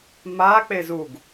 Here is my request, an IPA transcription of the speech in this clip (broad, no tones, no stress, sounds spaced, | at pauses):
m a k͡p e z u ɡ